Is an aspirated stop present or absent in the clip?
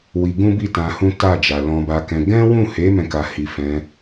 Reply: absent